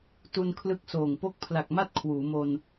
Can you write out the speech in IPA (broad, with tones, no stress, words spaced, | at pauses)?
tu˧nkʰlɯ˦˥k̚soː˨˩ŋ po˦˥k̚pʰla˨˩k̚ma˥˩t̚ kʰwuː˩˦mo˧n